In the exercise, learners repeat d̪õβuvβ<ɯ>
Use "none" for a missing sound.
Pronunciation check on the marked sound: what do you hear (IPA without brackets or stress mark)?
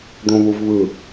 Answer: ɯ